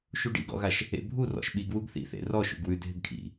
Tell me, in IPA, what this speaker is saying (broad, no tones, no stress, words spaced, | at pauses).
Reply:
ʃuɖḭɡɔ̰ɣaʃ | ḛbʱu rɔ̰ʃɓiɡ wuɡθḭθḛ rɔ ʃṵɡwʉ dʱɪɡkʰḭ